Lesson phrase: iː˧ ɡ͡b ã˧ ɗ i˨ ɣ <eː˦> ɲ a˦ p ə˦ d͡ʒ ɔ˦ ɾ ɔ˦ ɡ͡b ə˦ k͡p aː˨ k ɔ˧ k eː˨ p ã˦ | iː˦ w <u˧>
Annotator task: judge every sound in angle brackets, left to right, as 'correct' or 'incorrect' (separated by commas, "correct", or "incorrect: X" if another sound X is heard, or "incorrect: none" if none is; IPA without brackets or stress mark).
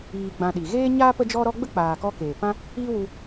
correct, correct